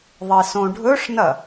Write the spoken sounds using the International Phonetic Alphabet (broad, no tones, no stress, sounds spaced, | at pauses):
ðˤ i s õ ɖʱ ɵ ʂ n ɐ